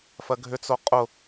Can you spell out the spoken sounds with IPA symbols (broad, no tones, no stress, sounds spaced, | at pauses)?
f ɜ ɡʱ ʏ t͡s o qʼ ʊ